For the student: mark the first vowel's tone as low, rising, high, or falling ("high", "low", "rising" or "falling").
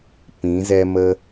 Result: rising